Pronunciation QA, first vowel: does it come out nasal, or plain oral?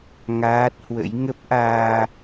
oral